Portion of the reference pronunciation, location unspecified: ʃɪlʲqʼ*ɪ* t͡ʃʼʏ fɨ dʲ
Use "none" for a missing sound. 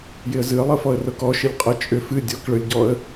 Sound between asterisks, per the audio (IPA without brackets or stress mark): ə